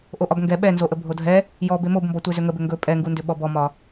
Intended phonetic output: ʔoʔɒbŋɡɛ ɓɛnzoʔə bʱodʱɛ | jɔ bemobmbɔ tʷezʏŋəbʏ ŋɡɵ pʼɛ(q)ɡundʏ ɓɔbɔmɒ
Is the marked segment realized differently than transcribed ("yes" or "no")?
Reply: yes